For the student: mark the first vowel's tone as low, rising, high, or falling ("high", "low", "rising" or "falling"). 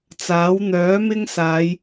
rising